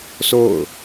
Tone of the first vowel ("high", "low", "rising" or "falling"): falling